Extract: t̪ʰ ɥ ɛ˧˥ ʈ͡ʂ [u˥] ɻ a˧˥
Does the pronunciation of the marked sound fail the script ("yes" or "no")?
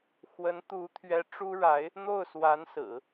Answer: no